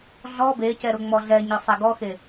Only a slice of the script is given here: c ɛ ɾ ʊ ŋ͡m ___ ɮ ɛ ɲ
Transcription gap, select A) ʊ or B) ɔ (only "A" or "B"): B